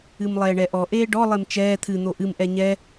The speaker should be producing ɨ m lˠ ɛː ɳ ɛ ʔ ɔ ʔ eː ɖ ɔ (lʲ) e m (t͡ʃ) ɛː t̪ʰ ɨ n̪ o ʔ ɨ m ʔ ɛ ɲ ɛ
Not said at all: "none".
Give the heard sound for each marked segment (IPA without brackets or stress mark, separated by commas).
lˠ, t͡ʃ